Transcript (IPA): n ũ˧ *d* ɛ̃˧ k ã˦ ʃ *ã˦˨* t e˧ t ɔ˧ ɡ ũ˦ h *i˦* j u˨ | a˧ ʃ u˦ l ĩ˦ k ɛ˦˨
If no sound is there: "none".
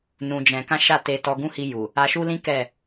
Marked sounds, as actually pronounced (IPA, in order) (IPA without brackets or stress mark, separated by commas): d͡ʒ, a˦˨, i˧